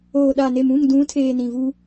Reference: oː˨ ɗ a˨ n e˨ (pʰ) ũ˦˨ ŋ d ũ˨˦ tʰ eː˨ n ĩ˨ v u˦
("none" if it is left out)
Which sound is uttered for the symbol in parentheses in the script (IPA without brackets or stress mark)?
m